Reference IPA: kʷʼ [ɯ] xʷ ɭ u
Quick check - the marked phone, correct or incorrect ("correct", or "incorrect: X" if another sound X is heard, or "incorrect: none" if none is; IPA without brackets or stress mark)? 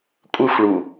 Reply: correct